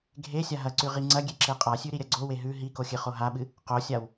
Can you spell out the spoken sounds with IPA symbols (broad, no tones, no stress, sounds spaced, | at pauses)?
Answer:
ɡʱ e sʲ a ɦ ɐ ǀ ʉ ʁ i ŋ͡ǀ ɐ ɡʲ e ǁ e qʼ a sʲ ʉ ɾ i ɾʲ ɐ ɡ͡ǀ o w e ɦ ʉ ɦ i k o xʲ ɨ χ o ɦ a ɓ ɨ | q o sʲ a w